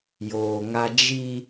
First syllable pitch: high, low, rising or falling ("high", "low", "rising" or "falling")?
low